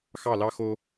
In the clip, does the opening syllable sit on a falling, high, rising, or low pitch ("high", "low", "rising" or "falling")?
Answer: falling